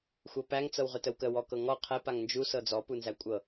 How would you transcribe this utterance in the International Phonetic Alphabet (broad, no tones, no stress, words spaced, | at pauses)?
xʷɤpæŋ t͡sɤwʁøtəwkə wɔkɤŋɔ qʰɛ paŋnd͡ʒu sɤd͡zɔ punzækʷʼɤ